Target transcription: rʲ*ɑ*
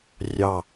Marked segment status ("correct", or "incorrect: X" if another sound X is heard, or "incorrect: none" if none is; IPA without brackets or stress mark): correct